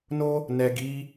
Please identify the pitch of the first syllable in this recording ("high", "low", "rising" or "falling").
high